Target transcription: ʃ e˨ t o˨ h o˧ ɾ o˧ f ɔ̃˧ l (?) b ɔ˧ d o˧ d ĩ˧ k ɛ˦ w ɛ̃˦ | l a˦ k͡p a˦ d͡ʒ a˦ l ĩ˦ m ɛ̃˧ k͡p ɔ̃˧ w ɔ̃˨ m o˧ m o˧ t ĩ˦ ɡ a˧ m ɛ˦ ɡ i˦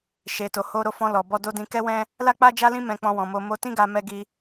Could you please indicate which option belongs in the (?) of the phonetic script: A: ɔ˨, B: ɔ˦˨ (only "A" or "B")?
A